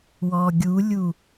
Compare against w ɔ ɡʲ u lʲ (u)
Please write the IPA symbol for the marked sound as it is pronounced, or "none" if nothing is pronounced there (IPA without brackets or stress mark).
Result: u